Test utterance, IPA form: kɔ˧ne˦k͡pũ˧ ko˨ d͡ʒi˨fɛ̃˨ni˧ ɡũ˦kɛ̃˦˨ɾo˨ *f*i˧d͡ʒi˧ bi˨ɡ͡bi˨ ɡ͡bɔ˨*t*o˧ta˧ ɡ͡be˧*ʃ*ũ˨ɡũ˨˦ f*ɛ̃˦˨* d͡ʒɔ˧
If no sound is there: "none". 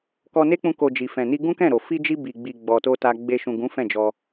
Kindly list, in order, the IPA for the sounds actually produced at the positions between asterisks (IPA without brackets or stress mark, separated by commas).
f, t, ʃ, ɛ̃˦˨